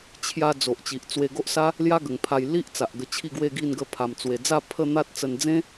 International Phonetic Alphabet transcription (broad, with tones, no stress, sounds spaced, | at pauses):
t͡ɕʰ j a˧ d͡z o˨ ʔ t͡ɕ i˨ ʔ t͡s w e˧ ɡ o˦ ʔ s a˦ | l j a˦ ɡ ə˨˩ ŋ pʰ a˧ j l i˦ ʔ t͡s a˨ ʔ ɡ ə˧ t͡ɕʰ i˥˧ ɡ w e˥˧ ɡ i˥˧ n ɡ ə˧ pʰ a˨˩ m t͡s w e˨˩ d͡z a˥˧ pʰ ə˥˧ n̪ a˦ t̚ t͡s ə˧ n d͡z ẽ˦